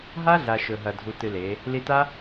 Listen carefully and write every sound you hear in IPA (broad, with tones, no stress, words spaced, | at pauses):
ɦa˦ɮa˨ ʃɵ˨ɦɐ˨ dʱu˧tɨ˧le˨˦ | li˧ta˦